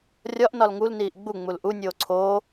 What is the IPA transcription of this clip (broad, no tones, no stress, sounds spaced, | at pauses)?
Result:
rʲ ɒ ʔ n ɒ l ŋ u l n iː ʔ ɡ͡b u ŋ͡m u l ʔ u nʲ oː ǀʰ oː